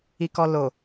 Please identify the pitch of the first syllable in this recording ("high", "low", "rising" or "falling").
low